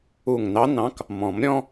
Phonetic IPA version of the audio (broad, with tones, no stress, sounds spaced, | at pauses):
u˧˩ ŋ n ɑ˧˥ n ɑ̃˧˥ k | m ɔ̃˨˩˦ m ɾʲ ɔ̃˥